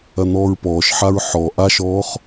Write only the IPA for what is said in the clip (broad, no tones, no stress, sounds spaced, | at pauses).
ɐ n̪ ɔː ɹ p ɔː ʃ ħ a ɹ ħ ɔ ʔ a ʃ ɔː χ